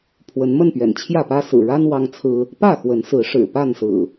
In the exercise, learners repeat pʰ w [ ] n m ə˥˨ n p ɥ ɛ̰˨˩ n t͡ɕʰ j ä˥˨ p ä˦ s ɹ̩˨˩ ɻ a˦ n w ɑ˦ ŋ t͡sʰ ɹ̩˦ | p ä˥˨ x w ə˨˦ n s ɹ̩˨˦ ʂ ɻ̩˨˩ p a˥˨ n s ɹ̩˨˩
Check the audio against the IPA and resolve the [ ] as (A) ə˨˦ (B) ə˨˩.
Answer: A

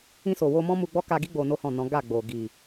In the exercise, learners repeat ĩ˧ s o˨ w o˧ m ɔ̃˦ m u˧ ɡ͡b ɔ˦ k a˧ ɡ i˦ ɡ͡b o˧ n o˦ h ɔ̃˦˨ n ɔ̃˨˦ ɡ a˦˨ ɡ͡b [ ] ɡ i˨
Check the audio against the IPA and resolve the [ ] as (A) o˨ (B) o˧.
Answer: A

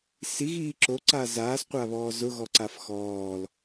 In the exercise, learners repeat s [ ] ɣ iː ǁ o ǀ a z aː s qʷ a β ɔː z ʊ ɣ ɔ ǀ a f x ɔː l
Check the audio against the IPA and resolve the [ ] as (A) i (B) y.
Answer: A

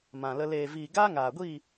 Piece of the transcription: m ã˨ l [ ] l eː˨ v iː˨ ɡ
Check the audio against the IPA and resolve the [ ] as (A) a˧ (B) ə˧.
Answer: B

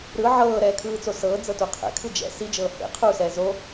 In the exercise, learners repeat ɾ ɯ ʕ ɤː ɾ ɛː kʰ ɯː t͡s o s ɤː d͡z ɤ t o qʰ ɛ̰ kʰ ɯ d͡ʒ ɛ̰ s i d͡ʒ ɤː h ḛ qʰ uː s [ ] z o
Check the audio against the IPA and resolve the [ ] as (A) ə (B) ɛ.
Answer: B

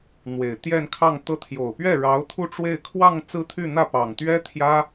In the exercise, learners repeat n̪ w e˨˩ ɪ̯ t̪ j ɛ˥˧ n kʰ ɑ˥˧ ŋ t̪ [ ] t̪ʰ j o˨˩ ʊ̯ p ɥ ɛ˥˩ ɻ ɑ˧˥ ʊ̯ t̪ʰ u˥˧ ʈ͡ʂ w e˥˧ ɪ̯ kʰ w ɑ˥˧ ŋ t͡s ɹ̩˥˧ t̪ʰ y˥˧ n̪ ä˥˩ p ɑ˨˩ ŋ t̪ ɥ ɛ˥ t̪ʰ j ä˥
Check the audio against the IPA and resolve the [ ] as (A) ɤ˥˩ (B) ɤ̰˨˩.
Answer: A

